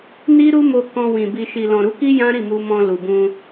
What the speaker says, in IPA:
n i˦ ɾ u˦ m o˧ k ɔ̃˧ w ĩ˨ b i˨ ʃ i˨ l ɔ̃˨ ɾ u˨˦ k i˦ j ã˦ ɾ i˦˨ m u˧ m ɔ̃˧ l u˨ b ũ˧

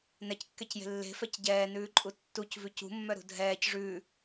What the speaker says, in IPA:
n ɛ c kː ɛ c j e̤ lː e̤ f ɛ c ɟ ɛː n ʉː ǃʼ u tː u c v ʉ c ṳ mː œ ɾ ṳ dʱ ɛː c ʐ ʉː

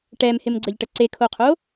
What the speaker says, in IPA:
ʈ ɛ m h ɪ m ɡ͡ǀ ə ʎ ʈ ə ǀ e kʰ o qʰ o

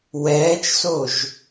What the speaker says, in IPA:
w ɛː t͡ʃ s o ʒ

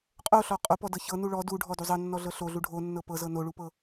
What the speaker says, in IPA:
qʼ o ɬ ɔ qʼ o p ɔ d ɤ ç ɤ n u ɭ ɔ d u ɖʱ ɔ d u zˤ ɤ nː ɔ ɮ ɤ ɬ o ɮ u ɖʱ o nː ɤ p ɤ z ɤ n o ɭ u p ɤ

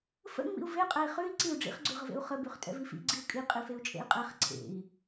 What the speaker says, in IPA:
f ə̰ ŋ͡m ḭ u̯ v e qʼ ɛ i̯ χ ʉ i̯ ǀ i u̯ ɖ͡ʐ ḭ χ ɡ͡ǀ ʉ ʁ ə v ḛ u̯ χ ə b ʉ χ tʼ ɛ̰ v i f ḭ ɡ͡ǀ i u̯ kʼ i qʼ i f e u̯ t͡ʃʼ ḛ i̯ qʼ ɛ χ ǀʰ ḛ i̯

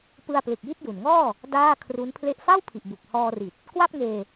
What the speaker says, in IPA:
p ɯ˧ a̯ p l ɯ˨˩ k̚ j i˥˩ t̚ j u˨˩ n ŋ ɔː˥˩ | d aː˥˩ kʰ r u˦˥ n pʰ l e˥˩ ʔ f a˥˩ w pʰ i˨˩ ʔ b u˨˩ k̚ h ɔː˧ r i˨˩ t̚ | k w a˥˩ p̚ ŋ eː˧

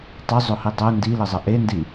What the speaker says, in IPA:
tˤ ʊ zˤ ʊ h i dˤ ʊ n d i l ɘ zˤ ə ʔ e n d i

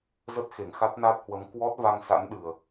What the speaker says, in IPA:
z ə˦˥ t̚ x e˧˩ ŋ x a˦˥ t̚ n a˦˥ t̚ h w ə˨˦ m k w ɔ˦˥ t̚ v a˧ ŋ s a̰˧˥ n ɗ ɨ˨˩ ə̯

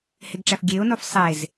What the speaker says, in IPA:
h e ɡ ʈ͡ʂ æ f ɡʲ e ʊ̯ n o f sˤ e z

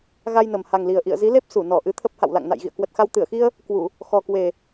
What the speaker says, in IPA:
ɣ a˧ j n ə˨˩ m h a˨˩ ŋ l i˨˩ ə̯ ʔ ḭ˧˨ ə̯ z i˨˦ l e˦˥ p̚ s u˧˩ n ɔ˧˩ ʔ ɨ˨˦ t̪ʰ ə˦˥ p̚ h a̰˧˨ w l a̰˧˨ ŋ n a̰˧˨ j ɣ ḭ˧˨ ə̯ k w ə˨˩ t̚ x a˧ w t̪ ɨ˧˩ ə̯ x i˧ ə̯ | k w u˧˩˨ | x ɔ˨˩ k w e˨˩

